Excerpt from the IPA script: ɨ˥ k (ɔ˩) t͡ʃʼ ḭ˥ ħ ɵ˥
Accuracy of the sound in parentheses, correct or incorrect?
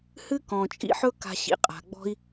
incorrect